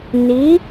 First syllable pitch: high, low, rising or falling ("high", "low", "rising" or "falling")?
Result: rising